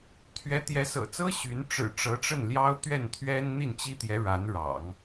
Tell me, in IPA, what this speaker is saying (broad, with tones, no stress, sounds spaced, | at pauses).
t̪ʰ ɥ ɛ˧˥ t̪ j ɛ˧˥ s ɤ̰˨˩ t͡s ɤ˥ ɕ y˧˥ n ʈ͡ʂ ɻ̩˨˩ ʈ͡ʂ ɤ˧˥ ʈ͡ʂ ə˥˩ n l j ɑ˥ ʊ̯ t̪ ɥ ɛ˥˩ n t̪ʰ ɥ ɛ˥ n n̪ i˥˩ n t͡ɕ i˥ t̪ j ɛ˧˥ ɻ a˧˥ n ɻ ɑ̰˨˩˦ ŋ